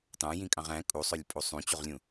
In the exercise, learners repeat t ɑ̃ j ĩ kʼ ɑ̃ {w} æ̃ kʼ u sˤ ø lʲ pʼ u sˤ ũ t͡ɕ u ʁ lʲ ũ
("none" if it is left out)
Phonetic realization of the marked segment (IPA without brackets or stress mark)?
ʁ